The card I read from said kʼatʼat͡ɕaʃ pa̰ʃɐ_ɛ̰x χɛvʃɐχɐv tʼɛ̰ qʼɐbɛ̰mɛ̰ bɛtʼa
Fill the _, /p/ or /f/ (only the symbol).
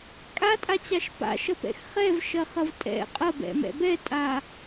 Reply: p